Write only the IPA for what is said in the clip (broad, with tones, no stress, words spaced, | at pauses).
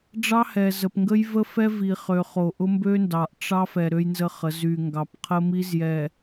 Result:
ɖ͡ʐɑ˦hɛ˨zə˨p ŋɡə˦jvə˦fɛ˦ vi˨χø˨χo˨ ʔʊ˦mbø˦ndɑ˨ʔ ʈ͡ʂɑ˦f ɛ˨ ɾø˦jnzə˦χə˨˦ zy˨ ŋɡɑ˨pqʰə˦mi˦zjɛ˨